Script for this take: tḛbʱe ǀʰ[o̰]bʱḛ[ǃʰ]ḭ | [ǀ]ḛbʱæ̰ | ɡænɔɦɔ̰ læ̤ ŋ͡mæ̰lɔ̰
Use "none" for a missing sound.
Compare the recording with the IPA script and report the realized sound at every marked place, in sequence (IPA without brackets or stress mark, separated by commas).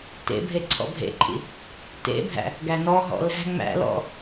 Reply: ɔ̰, ǃʰ, t